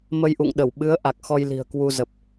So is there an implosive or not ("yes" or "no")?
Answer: yes